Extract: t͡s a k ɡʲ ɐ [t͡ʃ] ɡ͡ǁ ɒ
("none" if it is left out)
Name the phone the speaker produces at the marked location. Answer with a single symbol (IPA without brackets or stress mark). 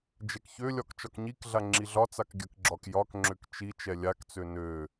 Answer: k